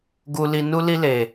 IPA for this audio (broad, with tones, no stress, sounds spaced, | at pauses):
ɡ u˨ l i˨ n u˧ l i˧ l e˨